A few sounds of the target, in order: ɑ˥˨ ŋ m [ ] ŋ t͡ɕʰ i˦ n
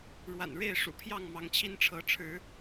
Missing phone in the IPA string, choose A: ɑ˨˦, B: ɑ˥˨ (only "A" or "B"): A